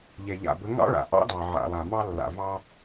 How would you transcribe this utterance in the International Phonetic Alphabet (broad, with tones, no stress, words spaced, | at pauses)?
ʎɛ˨ʎa̰˨bə˨˦ ŋɑ̰˦ɭa̰˨ʔɑ̰˦dɑ˨ ʕa̰˨lˠa˨ mɑ˦lːa̰˨vɑ˦